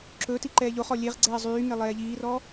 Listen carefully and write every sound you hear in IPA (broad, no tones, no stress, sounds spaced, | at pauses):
ǁ ɵ t i ǃ ɛː ʎ o χ ɔ lʲ e ʁ ɡ͡ǀ ɛː zˤ yː ŋ e lˠ ɛː ʎ iː r ɔ